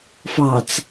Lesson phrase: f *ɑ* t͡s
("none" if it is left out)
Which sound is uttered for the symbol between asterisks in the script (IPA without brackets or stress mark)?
ɑ